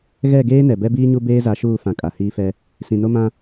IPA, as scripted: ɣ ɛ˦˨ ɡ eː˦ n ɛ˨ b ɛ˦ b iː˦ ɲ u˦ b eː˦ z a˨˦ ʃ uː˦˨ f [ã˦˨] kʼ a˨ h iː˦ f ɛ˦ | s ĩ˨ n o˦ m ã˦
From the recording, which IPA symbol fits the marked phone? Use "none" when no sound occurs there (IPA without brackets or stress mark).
ã˨